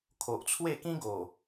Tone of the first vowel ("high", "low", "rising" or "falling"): low